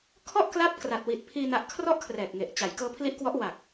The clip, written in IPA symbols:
kʰ ɔ˥˩ ʔ k l a˦˥ p̚ k r a˨˩ t̚ w i˨˩ t̚ pʰ iː˧ n a˦˥ ʔ kʰ r ɔ˥˩ ʔ kʰ r ɛː˨˩ k̚ ŋ e˨˩ ʔ t͡ɕ a˩˦ j k ɤː˦˥ pʰ l i˦˥ ʔ k w ɔ˦˥ ʔ w a˨˩ k̚

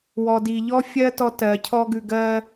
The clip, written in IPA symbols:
w ɔ˨ d i˨ ʎ ɔ˦ fʲ ɜ˦ t ɔ˦ t ɜ˨ cʰ ɔ˦ ɡ ʉ˧ ɡ ɜ˧

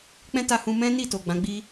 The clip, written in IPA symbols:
k͡p ɛ̃˦ t a˧ h ũ˧ m ɛ̃˦ n i˦˨ t o˨ ɡ͡b ã˨˦ ɡ͡b i˦

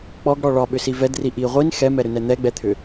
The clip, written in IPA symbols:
k͡p ɔ ɡ ɽ ɔ ɭ ɒ ɓ ʏ s i v ɛ d r i ʔ i ʁʷ i n x ɛ m ɛ ɾ ʏ n ɛ n̪ ɛ ɡ͡b ɛ t̪ʰ ʏ

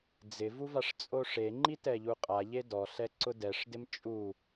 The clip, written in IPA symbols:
d͡z ɪ v u v a ʂ t͡sʼ o ʂ e ŋ͡ǃ i t ɛ ʎ u qʼ a ʎ e d ɔ ɬ ɛ ǀ ʊ d ɛ ʂ d ɪ m t͡ʃʼ u

